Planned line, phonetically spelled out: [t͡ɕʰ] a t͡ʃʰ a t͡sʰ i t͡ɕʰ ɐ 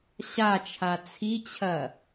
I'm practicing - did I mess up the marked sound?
yes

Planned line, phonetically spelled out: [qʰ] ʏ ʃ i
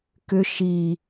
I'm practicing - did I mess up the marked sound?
yes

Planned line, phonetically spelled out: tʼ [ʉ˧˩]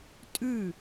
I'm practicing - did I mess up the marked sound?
no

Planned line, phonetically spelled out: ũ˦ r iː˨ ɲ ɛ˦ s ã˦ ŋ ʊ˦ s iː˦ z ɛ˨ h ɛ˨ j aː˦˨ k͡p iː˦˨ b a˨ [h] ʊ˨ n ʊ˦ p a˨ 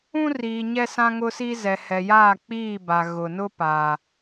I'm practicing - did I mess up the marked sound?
yes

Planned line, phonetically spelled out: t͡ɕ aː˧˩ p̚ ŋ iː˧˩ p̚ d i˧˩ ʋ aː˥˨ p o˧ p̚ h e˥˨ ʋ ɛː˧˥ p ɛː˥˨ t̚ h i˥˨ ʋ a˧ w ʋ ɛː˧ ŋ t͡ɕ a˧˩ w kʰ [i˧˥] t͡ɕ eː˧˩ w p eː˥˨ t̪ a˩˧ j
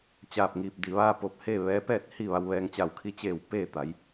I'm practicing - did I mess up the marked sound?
no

